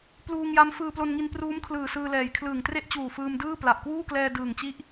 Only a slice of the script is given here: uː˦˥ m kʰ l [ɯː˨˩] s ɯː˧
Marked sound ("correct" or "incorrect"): correct